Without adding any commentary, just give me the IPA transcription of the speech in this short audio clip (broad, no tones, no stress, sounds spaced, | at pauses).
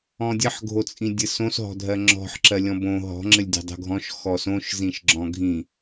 ɔ̃ dʲ ɘ ħ ɡʱ o t͡sʼ ĩ dʲ ɘ s õ s ɦ ɔ̤ dʱ ɜ ŋ͡ǁ ɔ̤ ħ ǁ ɜ lʲ ɔ̃ b õ ɦ ɔ̤ ŋ͡ǁ ɘ lʲ dʲ o̤ dˤ o̤ ɡʱ ɔ̃ ʃ x ɔ s õ ʃ z ĩ ʃ ɡ͡ǁ ɔ̃ ɡʱ ĩ